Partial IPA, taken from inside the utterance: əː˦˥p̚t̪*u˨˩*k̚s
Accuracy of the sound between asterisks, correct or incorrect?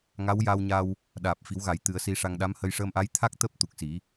correct